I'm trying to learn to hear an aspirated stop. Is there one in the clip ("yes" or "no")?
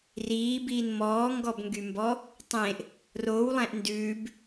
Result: no